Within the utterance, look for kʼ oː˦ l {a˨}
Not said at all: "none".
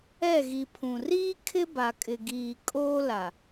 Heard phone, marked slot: a˨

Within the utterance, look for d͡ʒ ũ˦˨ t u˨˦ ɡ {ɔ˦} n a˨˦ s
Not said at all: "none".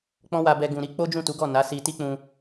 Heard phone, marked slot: ɔ˦˨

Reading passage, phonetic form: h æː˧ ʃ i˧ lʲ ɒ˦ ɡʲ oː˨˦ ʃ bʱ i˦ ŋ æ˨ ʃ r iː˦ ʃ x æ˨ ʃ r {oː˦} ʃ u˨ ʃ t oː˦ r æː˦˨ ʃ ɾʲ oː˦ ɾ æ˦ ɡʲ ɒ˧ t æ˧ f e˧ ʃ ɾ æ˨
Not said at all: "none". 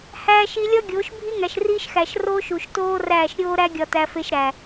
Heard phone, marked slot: oː˦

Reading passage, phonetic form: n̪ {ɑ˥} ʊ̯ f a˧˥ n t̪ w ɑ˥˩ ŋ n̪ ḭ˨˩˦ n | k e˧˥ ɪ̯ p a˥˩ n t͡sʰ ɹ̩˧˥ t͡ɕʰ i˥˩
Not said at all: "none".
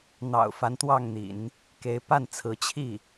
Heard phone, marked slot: ɑ̰˨˩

